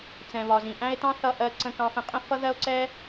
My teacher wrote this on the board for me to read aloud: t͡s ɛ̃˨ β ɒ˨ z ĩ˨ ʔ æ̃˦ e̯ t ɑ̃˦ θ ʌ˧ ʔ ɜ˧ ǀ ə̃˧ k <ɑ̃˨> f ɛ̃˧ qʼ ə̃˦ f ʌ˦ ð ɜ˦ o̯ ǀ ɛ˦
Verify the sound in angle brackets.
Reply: incorrect: ɑ̃˧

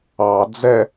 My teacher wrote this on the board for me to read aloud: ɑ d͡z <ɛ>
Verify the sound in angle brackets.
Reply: correct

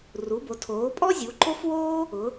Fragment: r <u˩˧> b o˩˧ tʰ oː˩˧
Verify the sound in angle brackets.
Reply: correct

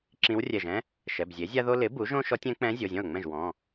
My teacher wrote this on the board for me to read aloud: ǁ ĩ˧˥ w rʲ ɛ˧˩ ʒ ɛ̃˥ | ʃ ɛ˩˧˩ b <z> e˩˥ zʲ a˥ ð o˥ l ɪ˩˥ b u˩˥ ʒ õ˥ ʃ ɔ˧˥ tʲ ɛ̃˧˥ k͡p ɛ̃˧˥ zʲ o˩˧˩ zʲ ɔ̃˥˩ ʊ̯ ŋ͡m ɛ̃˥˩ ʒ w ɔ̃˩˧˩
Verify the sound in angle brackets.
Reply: incorrect: zʲ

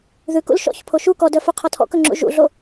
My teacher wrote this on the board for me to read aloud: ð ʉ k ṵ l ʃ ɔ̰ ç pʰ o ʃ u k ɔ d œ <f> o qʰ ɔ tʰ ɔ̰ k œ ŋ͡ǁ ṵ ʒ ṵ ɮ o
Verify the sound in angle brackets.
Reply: correct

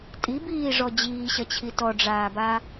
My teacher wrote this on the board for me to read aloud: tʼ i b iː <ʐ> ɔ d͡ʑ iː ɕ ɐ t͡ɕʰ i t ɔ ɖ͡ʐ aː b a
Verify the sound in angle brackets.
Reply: correct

